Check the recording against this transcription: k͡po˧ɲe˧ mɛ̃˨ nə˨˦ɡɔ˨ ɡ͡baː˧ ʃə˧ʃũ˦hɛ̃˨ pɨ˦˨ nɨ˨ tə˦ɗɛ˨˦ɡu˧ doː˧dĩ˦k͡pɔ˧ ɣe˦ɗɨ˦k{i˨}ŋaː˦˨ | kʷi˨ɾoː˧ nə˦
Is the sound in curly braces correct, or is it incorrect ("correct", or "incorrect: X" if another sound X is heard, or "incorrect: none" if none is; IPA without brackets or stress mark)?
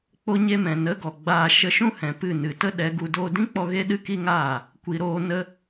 incorrect: i˦